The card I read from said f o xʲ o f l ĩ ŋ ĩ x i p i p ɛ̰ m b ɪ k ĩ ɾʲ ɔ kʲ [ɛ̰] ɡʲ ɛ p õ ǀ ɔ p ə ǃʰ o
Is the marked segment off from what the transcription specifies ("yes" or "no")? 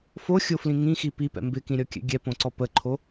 no